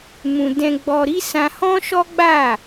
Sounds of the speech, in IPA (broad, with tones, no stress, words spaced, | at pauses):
mũ˧ dɛ̃˧ɡ͡bɔ˧ɾi˦ sã˧hɔ̃˦ ʃɔ˦ɡ͡ba˦˨